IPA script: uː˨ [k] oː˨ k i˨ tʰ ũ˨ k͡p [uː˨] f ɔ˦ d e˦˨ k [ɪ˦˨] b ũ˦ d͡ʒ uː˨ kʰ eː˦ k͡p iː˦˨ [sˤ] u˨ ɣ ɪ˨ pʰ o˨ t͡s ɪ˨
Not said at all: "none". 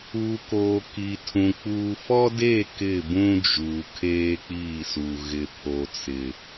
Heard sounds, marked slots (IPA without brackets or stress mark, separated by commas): k, uː˨, ɪ˦˨, s